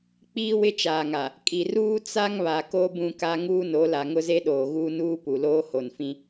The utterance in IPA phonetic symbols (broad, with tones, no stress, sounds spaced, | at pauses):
k͡p iː˦ w ɪ˦ t͡ʃ aː˨ ŋ a˨ | kʼ i˨ r uː˦ t͡s a˦ ŋ β a˨ k o˦ b ũ˦ k a˦ ŋ uː˦ n o˨˦ l a˨ ŋ ʊ˦ z e˦ ɗ oː˨ ɣ uː˦ n uː˦ p u˨ l oː˦ h o˨ n f ĩ˦